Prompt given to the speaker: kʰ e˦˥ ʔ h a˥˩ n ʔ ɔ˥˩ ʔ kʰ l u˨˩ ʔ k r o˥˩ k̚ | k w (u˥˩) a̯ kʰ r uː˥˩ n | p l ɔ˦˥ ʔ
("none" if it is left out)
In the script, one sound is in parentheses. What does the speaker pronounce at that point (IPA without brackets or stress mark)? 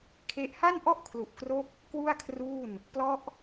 u˥˩